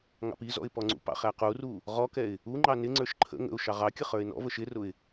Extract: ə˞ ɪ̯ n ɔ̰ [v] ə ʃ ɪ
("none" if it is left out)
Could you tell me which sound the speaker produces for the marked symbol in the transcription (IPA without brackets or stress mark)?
v